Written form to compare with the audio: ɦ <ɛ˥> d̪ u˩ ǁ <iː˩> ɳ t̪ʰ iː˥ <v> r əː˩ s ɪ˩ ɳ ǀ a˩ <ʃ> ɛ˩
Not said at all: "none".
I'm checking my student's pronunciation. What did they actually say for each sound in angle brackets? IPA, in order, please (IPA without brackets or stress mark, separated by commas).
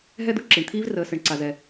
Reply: ɛ˥, i˩, v, z